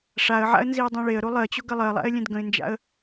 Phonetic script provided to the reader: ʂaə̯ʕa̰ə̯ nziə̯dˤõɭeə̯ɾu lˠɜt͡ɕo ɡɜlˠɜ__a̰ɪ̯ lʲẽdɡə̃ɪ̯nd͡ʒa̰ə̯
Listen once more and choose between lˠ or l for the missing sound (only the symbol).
lˠ